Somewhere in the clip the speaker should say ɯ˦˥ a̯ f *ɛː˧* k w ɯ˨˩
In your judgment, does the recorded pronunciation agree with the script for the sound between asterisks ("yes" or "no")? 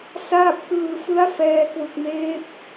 yes